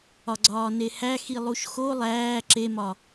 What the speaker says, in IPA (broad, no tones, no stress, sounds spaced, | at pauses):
ɒ ɡ͡ǀ ɒː n e h æ x i lˠ u ʃ x o lˠ æː ǁ e m ɒ